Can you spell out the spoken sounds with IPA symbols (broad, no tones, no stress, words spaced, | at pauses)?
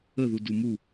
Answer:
əðu dumu